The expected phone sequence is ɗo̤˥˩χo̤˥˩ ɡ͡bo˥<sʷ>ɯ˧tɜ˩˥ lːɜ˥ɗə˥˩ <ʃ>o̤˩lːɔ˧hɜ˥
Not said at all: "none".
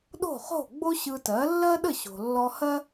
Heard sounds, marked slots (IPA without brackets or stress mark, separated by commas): ɕ, ɕ